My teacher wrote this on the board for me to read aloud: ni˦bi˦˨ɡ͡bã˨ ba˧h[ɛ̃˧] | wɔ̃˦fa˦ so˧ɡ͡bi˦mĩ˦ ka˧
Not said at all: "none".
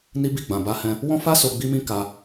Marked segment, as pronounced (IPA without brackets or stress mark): ɛ̃˧